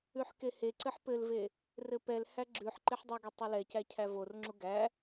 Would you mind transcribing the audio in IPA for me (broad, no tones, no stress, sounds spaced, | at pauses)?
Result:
ʉ ħ k e h e ǀ ɘ ħ p ɘ l v e | r ɘ p ɛ l h æ ɡ͡ǁ ʉ ħ ǃ e ħ dˤ ɘ ɡ e tˤ u l ɛ c æ cʰ æ v o r ŋ͡ǁ u ɡ æ